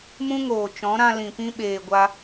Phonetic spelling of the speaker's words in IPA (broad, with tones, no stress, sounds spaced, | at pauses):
m ũ˦ ŋ oː˨ t͡ʃ ɔ̃˨˦ ɾ ã˧ l ĩ˨ p ĩ˦ ɓ eː˨ ɡʷ a˧